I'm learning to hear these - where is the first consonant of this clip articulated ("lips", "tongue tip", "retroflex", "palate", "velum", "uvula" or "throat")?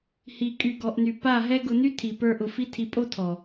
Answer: throat